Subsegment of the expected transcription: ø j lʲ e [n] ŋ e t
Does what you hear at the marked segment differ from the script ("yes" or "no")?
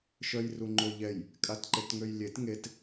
yes